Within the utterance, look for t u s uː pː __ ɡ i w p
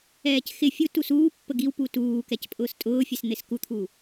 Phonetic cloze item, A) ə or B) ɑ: A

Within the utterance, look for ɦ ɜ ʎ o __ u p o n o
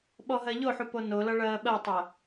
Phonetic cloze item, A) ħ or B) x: A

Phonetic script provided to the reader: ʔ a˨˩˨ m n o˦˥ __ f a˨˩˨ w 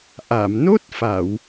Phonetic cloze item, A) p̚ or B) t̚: B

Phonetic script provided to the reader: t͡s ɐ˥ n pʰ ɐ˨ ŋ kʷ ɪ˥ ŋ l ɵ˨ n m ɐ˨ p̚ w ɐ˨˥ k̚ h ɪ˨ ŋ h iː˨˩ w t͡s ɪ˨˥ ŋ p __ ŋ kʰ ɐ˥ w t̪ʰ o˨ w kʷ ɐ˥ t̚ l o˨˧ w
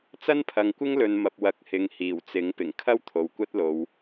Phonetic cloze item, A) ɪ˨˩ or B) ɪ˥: A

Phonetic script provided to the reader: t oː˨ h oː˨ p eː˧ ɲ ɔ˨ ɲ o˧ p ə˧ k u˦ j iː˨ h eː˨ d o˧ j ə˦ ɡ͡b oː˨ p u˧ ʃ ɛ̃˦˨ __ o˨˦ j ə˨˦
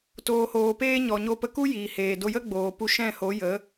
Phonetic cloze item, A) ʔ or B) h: B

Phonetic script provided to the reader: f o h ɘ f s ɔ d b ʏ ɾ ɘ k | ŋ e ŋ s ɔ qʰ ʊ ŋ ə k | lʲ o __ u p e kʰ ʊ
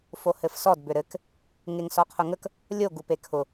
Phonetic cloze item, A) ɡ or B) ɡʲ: A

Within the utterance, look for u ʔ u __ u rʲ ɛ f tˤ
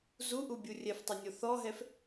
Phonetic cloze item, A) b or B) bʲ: B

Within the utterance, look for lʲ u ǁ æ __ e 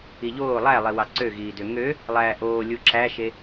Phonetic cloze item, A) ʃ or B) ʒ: A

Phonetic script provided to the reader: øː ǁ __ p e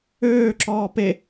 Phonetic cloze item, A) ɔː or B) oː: A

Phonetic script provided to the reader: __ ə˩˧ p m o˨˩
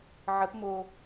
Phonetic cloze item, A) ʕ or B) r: A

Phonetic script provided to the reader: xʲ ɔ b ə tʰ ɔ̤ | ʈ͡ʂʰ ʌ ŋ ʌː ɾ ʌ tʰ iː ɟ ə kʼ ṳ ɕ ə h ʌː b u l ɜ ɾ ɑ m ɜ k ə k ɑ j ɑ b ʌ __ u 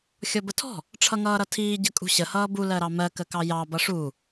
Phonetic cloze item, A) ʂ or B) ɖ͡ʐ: A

